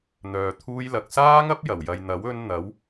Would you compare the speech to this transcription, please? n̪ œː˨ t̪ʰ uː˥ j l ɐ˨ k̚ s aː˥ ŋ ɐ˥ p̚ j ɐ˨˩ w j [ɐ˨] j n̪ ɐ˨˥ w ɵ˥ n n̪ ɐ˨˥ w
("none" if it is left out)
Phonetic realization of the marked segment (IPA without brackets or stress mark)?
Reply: ɐ˨